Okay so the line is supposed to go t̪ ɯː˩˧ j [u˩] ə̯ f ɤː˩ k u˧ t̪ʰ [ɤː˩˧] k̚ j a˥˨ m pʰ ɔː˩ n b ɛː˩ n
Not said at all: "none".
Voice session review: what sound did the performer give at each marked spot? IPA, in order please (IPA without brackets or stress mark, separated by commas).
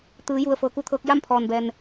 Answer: u˩, ɤː˧